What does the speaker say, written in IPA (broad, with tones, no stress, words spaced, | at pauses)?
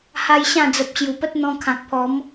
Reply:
ha˦jɕã˥˧ d͡zə˨p̚ɕju˨˩pə˦t̚ n̪ɔ̃˧kʰã˨k̚pʰɔ˨˦m